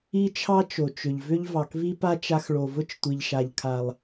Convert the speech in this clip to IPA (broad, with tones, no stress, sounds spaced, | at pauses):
i˦ t͡ʃʰ ɑ˦ t͡ʃ o˨ t͡ʃ ʏ˨ ʎ v ʏ˦ ʎ v ɑ˨ k v i˦ p a˦ t͡ʃ a˧ x ɭ o˨ v ʊ˦ t͡ʃ tʷ i˨ ʎ ʃ a˨ ʎ kʰ a˨ lˠ